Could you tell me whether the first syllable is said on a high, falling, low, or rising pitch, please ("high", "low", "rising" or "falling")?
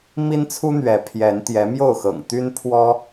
high